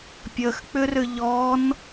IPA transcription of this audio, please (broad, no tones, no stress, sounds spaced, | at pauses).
pʲ ə x k͡p ʏ r ʏ ʎ ɔ n